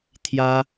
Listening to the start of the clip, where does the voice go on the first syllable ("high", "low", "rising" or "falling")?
high